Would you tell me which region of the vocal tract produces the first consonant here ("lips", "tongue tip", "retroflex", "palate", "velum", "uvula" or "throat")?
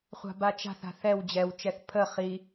uvula